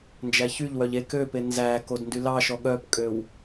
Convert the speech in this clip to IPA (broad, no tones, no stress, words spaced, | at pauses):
nd͡ʒæçyʎwœʎ ek øpe nzækod ndylɑʃɔ ɠœpkʼøw